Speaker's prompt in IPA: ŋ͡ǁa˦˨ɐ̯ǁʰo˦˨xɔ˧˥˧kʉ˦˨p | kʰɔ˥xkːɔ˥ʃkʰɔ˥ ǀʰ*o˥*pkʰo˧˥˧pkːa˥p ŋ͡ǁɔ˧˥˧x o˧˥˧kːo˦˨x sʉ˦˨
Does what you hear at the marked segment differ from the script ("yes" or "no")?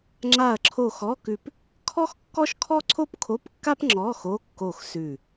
no